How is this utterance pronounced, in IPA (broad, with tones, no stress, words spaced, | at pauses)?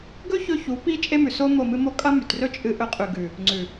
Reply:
ɡɵ˦ çɵ˦ çu˨˦pi˦ t͡ʃʼe˦ mʉ˨ so˦ mo˦˨mɨ˦mo˦ kʼɐ˦mʉ˨trɵ˦ t͡ʃʼɨ˦ʔɵ˦ qʼʉ˨ɡʉ˨ | ŋ͡ǀʉ˨